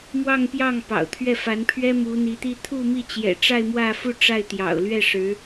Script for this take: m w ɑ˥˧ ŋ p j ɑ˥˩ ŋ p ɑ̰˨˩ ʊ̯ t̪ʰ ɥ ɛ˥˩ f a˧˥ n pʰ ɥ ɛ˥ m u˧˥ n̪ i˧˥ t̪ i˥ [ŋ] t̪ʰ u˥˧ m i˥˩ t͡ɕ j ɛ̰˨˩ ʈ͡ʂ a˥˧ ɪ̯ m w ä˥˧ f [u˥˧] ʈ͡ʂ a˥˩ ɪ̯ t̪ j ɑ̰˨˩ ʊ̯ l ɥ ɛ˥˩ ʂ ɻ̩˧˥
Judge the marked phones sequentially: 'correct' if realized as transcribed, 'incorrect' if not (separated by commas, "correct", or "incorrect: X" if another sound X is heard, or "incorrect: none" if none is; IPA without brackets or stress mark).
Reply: incorrect: none, correct